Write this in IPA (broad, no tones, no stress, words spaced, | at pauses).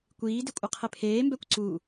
kʷiːdɪ kʷʼɪqʰɪpʰeːmbɛkʷ ǀu